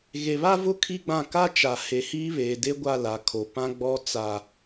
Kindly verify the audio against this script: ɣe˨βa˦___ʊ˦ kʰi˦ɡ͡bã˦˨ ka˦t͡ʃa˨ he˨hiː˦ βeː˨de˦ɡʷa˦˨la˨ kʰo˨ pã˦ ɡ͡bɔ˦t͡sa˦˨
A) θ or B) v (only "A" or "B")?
B